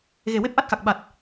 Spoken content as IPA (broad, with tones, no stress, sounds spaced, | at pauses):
ɣ e˨˩ w e˦˥ p̚ ʔ a˦˥ t̚ x a˨˩ k̚ ɓ a˨˩ t̚